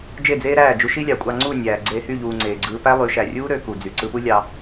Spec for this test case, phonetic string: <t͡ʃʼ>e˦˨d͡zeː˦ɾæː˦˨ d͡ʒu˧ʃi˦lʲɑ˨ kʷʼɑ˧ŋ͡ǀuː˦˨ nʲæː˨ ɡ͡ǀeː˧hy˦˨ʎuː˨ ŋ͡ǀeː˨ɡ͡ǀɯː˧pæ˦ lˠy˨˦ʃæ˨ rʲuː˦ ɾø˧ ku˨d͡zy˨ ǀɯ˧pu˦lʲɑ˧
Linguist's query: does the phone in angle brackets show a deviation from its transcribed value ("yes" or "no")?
yes